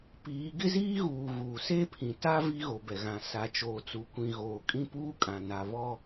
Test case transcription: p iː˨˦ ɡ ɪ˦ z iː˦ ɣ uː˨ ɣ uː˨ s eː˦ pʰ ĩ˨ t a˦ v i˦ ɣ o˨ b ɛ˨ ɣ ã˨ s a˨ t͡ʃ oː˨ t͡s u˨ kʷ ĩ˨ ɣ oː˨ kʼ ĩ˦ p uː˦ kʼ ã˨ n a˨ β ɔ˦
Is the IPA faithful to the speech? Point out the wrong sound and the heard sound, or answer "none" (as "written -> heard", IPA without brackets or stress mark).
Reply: none